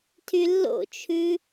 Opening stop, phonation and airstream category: aspirated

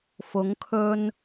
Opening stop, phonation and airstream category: aspirated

